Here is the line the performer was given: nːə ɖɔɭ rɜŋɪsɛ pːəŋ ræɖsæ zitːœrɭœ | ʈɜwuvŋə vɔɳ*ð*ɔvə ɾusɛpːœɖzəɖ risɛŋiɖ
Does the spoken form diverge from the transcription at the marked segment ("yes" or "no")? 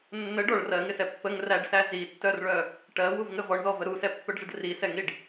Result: no